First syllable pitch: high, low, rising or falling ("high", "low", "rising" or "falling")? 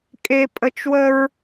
high